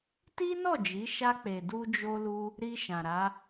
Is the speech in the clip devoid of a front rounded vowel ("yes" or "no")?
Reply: yes